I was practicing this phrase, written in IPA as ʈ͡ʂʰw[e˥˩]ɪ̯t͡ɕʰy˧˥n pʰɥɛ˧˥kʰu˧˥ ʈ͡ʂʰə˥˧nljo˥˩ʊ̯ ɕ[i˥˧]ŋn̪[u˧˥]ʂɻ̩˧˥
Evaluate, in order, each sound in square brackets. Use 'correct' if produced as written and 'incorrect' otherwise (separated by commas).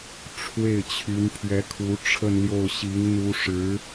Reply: correct, incorrect, correct